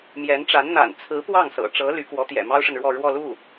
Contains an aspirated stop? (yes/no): yes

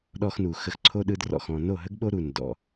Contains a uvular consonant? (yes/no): no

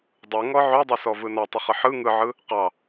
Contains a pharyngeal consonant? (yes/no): yes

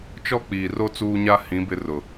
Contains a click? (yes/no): no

